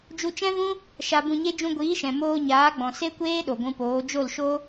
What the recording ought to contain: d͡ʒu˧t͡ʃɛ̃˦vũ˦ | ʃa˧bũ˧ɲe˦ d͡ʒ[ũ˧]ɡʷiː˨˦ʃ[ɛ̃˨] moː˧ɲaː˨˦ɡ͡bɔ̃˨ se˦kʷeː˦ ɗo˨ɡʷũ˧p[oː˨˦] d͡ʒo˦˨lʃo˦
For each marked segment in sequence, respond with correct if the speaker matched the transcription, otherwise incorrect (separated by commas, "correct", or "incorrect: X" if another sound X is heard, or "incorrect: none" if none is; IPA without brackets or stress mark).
correct, correct, correct